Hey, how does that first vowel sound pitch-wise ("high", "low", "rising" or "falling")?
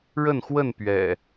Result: falling